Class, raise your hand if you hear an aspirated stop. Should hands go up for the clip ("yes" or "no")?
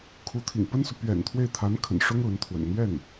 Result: yes